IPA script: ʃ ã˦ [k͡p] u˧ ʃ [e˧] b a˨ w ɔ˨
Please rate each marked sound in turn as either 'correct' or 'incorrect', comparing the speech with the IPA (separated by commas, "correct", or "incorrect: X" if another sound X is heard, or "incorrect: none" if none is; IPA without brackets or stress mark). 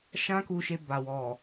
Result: incorrect: k, correct